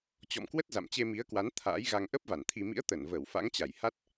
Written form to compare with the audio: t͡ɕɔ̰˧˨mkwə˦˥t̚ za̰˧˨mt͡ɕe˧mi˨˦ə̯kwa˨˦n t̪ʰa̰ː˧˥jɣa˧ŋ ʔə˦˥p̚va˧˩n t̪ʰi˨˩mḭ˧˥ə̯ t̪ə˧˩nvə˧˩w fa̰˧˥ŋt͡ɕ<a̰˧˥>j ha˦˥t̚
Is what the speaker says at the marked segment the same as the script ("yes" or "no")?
no